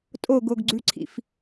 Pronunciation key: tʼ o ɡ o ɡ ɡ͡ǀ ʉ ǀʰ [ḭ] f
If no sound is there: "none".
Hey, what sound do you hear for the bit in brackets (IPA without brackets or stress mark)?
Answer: ḭ